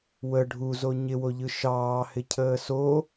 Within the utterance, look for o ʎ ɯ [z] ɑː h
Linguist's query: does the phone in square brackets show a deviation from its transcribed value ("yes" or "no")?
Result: yes